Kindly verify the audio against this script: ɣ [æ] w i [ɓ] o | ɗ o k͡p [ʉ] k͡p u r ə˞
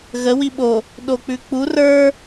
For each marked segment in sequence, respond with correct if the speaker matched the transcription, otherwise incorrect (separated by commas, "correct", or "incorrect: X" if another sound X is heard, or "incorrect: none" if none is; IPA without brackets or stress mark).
incorrect: ə, correct, correct